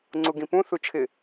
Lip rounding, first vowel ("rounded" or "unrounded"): rounded